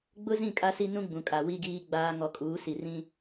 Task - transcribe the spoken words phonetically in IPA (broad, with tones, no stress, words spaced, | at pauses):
ɡ͡bʊ˦zĩ˦˨ kʼa˦si˦ nũ˦ɡ͡bũ˨kʼa˨ wi˦ɡiː˦ɡ͡baː˦ ŋɔ˨kʼuː˨˦si˨ rĩ˦